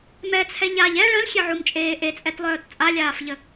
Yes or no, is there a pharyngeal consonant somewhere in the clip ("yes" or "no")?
yes